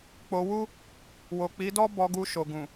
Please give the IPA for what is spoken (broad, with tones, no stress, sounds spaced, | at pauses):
k͡p o˧ w u˦ | w o˨ k͡p i˨˦ d ɔ˦ b ɔ˧ ɡ u˧ ʃ o˨ ɡ ũ˨